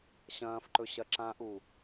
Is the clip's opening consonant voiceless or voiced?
voiceless